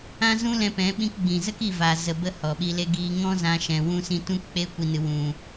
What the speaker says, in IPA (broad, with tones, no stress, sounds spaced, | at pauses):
ã˦ z ũ˦ l ɛ̃˧ p ɛ̃˨˦ ɓ ĩ˧ k ɡ͡b ĩ˨ z ə˦ k i˦˨ v a˨ z ə˨ b ə˧ h ɔ˨ ɓ i˧ l e˧ ɡ iː˧ ŋ ɔ̃˦ z ã˧ ʃ ɛ̃˧ w ũ˦ s ĩ˦ t ũ˦ k k͡p e˦ kʷ i˧ n ɨ˧ w ũ˧